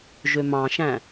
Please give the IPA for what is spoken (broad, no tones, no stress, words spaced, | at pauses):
ʒømɑ̃ʃæ̃